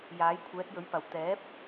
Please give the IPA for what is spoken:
j aː˨˥ j kʷʰ ɛː˨˥ t̚ j ɵ˨˥ ɥ p ɐ˨˩ w t̪ ɛː˨˥ p̚

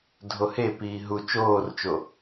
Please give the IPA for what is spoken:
dʱ o h e p iː ɦ u t͡ʃ oː r t͡ʃ o

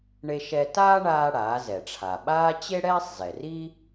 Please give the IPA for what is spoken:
ɳ e˧ ʃ ɛ˧ t aː˥ ɳ aː˧ ɽ aː˩˧ z ɛ˩ ʈ͡ʂʰ a˩ ɓ aː˥ t͡ɕ e˥ ɽ ɛː˥ sˤ z ɛ˩ r i˥

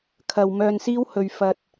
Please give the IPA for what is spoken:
kʰ ɐ˨ w m œː˧ n s iː˥ w h ɵ˧ ɥ f ɐ˧ t̚

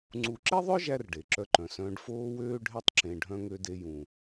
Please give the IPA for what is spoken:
ŋ͡ǀ u˧ ǁ e˥ ðˤ œ˥ ʒ æ˧ r ɖ e˩ ǁ œ˧ ǃ œ̃˩ s œ̃ː˧ ɖ f oː˥ w øː˥ ɖʱ e˥ tˤ ǁ ẽ˧ ɖʱ œ̃˥ ŋ ø˧ d e˧ j ũ˩

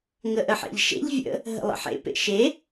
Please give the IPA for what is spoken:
ŋ ə ʔ ə ħ ḛ ʎ ʃ ḛ ʎ vʲ ə̰ | ɦ ə̰ lˠ ə̰ ħ ḛ p ḛ ʃ e

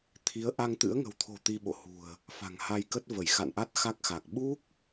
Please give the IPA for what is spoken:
t̪ʰ i˨˦ ə̯ ʔ a˧ ŋ t̪ ɨ̰˧˥ ə̯ ŋ ə̤˨˩ w t̪ʰ o̤˨˩ t̪ i˧ ɓ o̰˧˨ h ṳ˨˩ ə̯ | f a̤˨˩ ŋ h a˧ j k ə˦˥ t̚ v ə˧˩ j x a̰˧˨ n ʔ a˦˥ t̚ x a˦˥ k̚ x a˨˩ k̚ ɓ u˦˥ k̚

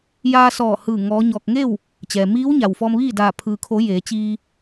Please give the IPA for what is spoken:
j aː˧ s ɔː˧˩ h ɯː˧˩ ŋ ɔː˧˥ ɲ ɔː˧ k̚ ŋ e˥˨ w | t͡ɕ ɛː˩ m iː˧˥ w ɲ a˩ w f ɔː˧ m ʋ iː˥˨ d aː˧˩ pʰ ɯː˩ kʰ o˩˧ j eː˩˧ t͡ɕ iː˧

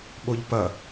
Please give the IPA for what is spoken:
ɓ o ʎ p ɐ

